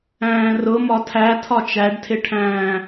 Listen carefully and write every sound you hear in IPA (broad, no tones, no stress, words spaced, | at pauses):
æ̃ːrʊ mɒtʰætʰɒ t͡ʃæɖtʰɪʈʰæ̃ː